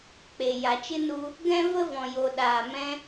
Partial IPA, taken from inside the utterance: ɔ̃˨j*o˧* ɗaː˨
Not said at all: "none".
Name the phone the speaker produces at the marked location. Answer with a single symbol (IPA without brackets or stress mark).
o˨